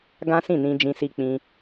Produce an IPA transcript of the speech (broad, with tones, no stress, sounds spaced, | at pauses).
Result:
ɡ ã˦ s ĩ˦˨ n ĩ˧ d͡ʒ ĩ˧ s i˧ k͡p ĩ˧